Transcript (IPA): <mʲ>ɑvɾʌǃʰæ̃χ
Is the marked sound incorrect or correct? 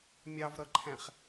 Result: correct